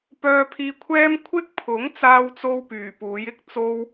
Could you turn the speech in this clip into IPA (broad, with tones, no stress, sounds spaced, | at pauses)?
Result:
p œː˧ pʰ iː˧ kʷʰ ɛː˥ m kʷʰ ɪ˥ k̚ pʰ ʊ˨˥ ŋ t͡s aː˧ w t͡s o˧ w p yː˨˩ p uː˨˥ j ɪ˥ k̚ t͡s o˥ w